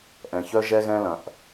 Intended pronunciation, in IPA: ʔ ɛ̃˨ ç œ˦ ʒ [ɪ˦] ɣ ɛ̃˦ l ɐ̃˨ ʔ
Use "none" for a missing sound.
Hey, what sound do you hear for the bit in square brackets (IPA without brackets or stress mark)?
ɛ˦